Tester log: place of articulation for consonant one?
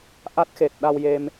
glottal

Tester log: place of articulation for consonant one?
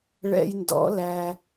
retroflex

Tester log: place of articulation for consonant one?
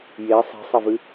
palatal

